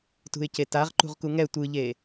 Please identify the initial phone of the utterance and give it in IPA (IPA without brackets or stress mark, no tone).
t